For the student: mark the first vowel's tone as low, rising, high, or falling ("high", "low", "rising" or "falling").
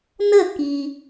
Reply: falling